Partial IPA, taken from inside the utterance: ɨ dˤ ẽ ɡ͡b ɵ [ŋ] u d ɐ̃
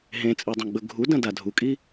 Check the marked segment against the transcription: incorrect: ɡʱ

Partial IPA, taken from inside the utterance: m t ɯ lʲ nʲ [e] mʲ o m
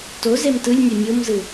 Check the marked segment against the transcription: correct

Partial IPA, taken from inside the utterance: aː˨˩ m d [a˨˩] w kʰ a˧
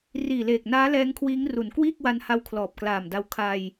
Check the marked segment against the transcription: incorrect: a˧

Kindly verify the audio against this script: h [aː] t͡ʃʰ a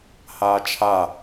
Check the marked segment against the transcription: correct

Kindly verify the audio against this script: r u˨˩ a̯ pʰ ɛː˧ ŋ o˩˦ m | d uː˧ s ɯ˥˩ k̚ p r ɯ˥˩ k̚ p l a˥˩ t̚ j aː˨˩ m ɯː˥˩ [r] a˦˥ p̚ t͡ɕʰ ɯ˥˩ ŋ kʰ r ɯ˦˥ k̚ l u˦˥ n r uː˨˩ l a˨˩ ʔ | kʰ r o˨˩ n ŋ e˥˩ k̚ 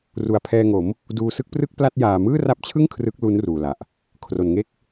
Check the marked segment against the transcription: correct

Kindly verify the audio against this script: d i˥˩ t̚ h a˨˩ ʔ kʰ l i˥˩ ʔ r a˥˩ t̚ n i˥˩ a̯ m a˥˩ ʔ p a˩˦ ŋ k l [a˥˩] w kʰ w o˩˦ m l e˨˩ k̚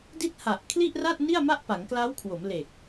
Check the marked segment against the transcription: incorrect: a˦˥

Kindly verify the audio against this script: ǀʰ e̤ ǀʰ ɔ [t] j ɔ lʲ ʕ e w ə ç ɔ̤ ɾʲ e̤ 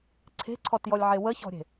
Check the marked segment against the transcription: correct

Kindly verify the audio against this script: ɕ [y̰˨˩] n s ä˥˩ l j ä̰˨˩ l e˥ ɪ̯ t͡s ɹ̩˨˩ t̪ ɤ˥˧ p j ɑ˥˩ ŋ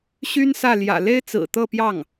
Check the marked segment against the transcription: incorrect: y˥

